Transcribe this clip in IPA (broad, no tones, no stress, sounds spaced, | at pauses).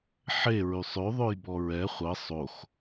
ħ e ɹ y sˤ ø ðˤ ø j b ɔ ɹ ɛ χʷ ə sˤ o x